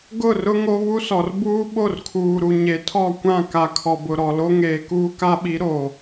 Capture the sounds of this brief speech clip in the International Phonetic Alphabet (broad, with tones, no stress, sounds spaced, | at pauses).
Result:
ɡ ʊ˦˨ r ʊ˦ ŋ o˦ β u˦ s ɔ˨ r b uː˦ ɓ o˦˨ r kʰ uː˨ ɾ u˨ ɲ e˨ tʰ ɔ˦˨ kʷ ã˦˨ k a˨ kʰ ɔ˨ b ʊ˨ ɾ ɔ˨ l o˦ ŋ eː˨ k uː˦ k a˦ ɓ i˨˦ ɾ o˨